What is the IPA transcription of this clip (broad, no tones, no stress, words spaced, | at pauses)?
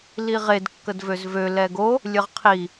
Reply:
liʁed kːədvøzvø lɛɡo | lʲəʁqʰi